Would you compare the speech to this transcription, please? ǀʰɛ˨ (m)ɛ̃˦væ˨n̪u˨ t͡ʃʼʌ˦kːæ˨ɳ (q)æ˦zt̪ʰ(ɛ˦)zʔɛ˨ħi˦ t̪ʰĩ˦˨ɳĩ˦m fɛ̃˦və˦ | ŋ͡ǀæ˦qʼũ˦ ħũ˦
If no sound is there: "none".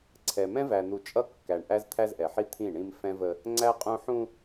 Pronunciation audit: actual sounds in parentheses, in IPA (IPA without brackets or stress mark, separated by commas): m, ʔ, æ˦